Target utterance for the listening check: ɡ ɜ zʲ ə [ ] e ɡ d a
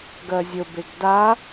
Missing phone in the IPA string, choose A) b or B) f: A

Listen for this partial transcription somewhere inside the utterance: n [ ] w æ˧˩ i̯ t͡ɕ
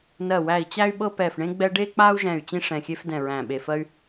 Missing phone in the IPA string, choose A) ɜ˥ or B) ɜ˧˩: B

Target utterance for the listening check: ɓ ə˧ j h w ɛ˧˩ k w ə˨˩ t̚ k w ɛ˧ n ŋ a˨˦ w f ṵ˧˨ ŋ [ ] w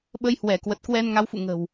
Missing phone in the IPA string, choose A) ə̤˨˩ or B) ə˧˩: A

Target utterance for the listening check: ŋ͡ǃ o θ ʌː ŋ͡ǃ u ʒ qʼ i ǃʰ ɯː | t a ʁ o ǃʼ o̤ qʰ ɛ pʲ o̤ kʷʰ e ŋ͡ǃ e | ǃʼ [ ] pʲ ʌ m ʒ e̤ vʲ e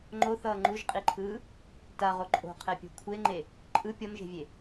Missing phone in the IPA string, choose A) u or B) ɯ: B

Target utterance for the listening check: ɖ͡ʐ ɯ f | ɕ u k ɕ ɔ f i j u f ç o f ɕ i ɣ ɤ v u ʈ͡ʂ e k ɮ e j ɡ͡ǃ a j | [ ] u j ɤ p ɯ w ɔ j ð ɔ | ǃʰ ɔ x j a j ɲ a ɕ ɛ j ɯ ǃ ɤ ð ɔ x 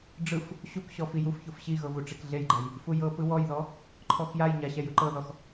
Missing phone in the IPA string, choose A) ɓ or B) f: B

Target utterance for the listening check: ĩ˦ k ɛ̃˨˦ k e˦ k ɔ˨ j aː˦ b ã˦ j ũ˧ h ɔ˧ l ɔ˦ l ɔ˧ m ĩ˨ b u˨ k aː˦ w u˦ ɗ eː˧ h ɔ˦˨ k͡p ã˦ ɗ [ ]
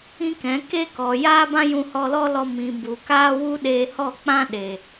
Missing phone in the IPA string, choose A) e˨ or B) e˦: A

